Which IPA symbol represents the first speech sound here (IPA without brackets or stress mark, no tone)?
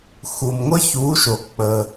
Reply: x